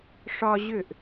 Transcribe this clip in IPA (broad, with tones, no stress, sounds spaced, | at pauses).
ʂ ɒ˦ ʑ ʏ˥˩ ʔ